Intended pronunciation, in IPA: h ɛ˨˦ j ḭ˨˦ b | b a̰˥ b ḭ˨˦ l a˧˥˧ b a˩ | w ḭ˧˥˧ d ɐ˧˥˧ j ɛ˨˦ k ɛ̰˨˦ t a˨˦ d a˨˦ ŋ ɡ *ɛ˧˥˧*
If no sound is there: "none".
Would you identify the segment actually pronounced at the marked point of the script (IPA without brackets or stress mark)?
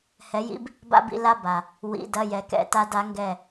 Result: ɛ˧˩